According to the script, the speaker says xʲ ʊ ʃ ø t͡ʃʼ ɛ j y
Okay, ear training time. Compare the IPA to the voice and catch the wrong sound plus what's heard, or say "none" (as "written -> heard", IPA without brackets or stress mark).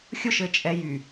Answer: ø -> ɘ